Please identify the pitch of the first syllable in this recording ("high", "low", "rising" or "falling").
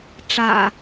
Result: low